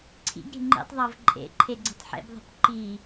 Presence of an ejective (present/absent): present